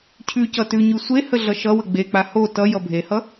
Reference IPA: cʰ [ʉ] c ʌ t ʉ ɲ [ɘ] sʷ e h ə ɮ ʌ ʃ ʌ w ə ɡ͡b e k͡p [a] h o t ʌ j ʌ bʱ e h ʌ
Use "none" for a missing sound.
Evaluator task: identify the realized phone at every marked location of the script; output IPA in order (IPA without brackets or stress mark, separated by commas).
ʉ, ʉ, a